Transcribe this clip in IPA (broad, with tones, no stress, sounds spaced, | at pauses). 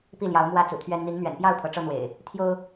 p i˥˨ l j ɑ˨˦ ʊ̯ m w ä˦ t͡s ṵ˨˩ t̪ʰ ɥ ɛ˦ n n̪ i˨˦ ŋ n̪ ɥ ɛ̰˨˩ n p j ɑ˥˨ ʊ̯ pʰ ɤ˨˦ ʈ͡ʂ ɤ˦ n̪ w ḛ˨˩ ɪ̯ | t̪ʰ j o˦ ʊ̯